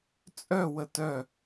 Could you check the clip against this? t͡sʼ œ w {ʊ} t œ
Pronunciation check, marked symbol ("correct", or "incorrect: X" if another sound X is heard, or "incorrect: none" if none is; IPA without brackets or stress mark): incorrect: ə